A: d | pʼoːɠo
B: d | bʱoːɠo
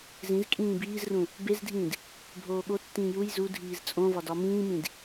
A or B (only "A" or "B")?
B